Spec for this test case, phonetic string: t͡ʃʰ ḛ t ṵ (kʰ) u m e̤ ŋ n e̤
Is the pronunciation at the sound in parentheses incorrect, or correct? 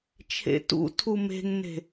incorrect